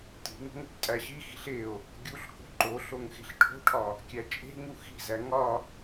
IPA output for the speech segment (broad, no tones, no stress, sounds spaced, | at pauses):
t i̤ ŋ o̤ ŋ o̤ b tʼ æ ɕ i x i̤ ɬ e o̯ | ɡʲ u ɬ k o̤ ǃ o ɬ o ŋ x e̤ ɬ ʈʰ o̤ ʈʰ ɒ | kʲ æ t͡ʃʼ e̤ ŋ u x i̤ z æ ŋ ɒ